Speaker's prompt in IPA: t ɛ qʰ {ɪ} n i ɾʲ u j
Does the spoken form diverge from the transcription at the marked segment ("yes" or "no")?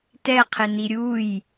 no